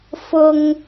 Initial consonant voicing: voiceless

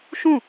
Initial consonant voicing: voiceless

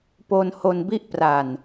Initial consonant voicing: voiceless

